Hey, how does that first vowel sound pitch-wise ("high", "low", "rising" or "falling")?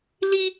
high